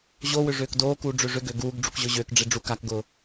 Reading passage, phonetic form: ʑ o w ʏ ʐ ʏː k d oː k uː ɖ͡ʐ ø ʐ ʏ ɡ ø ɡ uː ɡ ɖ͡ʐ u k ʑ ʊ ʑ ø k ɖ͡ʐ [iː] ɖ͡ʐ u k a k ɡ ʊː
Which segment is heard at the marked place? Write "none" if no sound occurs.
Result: i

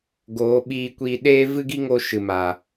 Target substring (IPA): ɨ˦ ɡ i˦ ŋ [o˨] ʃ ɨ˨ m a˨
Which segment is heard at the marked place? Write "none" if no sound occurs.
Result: o˧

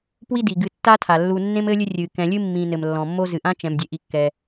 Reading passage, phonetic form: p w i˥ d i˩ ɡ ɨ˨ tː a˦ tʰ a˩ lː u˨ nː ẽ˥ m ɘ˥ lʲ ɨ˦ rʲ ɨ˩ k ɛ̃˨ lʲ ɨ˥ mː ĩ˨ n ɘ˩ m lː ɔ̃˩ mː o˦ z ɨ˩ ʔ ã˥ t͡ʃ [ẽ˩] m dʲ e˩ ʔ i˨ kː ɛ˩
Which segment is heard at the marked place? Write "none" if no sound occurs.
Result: ɛ̃˩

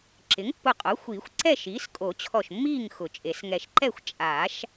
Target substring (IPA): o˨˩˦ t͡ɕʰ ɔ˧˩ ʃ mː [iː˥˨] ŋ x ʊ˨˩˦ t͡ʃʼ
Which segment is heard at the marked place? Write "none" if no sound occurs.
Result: iː˥˨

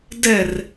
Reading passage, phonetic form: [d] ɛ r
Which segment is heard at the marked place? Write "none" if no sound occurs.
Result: d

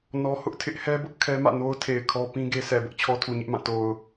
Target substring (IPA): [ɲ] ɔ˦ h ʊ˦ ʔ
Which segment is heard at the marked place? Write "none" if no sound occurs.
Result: n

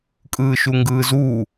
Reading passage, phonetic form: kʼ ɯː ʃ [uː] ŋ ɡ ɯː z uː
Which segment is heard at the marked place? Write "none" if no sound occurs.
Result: u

